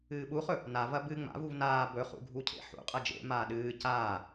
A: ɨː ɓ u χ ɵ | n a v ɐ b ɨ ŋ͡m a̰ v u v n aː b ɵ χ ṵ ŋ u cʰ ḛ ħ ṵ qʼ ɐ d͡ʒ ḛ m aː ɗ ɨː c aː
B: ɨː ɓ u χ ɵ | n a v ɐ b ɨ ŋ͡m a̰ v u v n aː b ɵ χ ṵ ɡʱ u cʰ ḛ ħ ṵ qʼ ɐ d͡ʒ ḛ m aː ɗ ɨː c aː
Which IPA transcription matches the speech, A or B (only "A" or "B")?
B